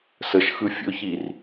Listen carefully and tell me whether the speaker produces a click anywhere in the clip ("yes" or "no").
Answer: no